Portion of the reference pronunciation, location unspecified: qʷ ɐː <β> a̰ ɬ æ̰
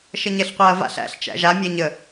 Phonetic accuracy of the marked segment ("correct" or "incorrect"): incorrect